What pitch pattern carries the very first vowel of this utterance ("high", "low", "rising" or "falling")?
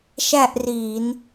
falling